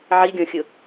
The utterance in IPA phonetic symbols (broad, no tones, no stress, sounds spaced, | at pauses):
ʕ i ɡʲ ɔ̃ xʲ ʊ